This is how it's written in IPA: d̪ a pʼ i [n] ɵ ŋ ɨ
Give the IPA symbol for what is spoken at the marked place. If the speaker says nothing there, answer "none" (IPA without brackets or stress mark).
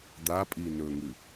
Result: n